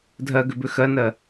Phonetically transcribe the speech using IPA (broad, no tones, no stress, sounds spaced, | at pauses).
dʱ ɜ ɡ ʏ b ʏ x ɜ n ɜ